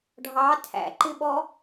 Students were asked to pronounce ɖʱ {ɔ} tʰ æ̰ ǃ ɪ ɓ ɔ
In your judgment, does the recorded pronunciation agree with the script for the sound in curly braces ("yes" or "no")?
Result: no